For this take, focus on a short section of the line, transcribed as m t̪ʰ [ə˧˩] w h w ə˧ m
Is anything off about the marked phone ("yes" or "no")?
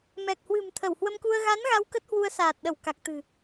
no